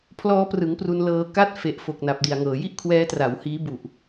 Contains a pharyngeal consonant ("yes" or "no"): no